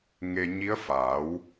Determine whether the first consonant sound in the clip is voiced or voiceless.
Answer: voiced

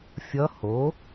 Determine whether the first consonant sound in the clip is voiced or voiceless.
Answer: voiceless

